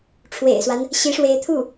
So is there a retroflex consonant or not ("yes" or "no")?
yes